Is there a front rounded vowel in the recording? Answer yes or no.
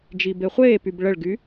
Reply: yes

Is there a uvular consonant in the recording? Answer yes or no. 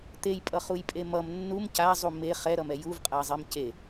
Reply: yes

